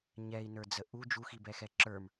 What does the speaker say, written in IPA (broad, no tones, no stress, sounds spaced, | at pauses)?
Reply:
ɲ ɛ i̯ n ə˞ d͡z ə ʔ u d͡ʒ u x i b ɛ x ɛ ǁ ə˞ m